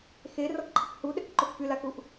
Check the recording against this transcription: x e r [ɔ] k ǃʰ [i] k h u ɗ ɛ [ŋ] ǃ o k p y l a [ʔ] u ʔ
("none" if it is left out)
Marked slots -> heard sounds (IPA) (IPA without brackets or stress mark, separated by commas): ɔ, i, k, k